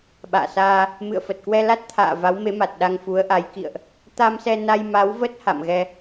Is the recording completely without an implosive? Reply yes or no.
no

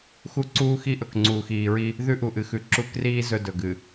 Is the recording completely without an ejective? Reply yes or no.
yes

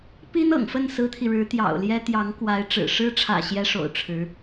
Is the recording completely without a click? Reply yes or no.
yes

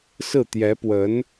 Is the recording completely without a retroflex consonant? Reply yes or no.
yes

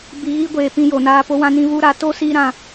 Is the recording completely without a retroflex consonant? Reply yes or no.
yes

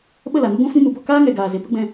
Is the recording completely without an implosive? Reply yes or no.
no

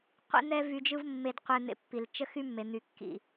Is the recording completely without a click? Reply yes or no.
yes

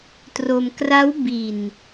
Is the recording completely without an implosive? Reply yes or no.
yes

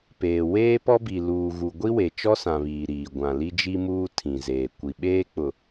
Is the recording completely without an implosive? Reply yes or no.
no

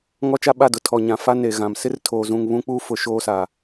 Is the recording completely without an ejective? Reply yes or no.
yes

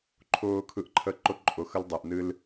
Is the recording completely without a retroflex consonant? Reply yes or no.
yes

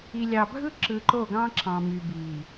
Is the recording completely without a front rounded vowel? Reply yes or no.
no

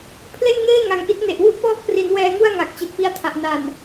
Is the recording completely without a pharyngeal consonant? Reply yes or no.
yes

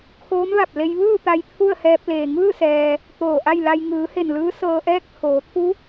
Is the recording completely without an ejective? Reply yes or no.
yes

